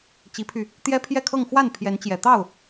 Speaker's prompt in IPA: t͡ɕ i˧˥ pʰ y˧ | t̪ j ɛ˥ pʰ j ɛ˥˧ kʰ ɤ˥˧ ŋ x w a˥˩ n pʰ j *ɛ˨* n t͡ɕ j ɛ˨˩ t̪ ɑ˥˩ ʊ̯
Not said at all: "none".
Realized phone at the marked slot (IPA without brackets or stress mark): ɛ˧˥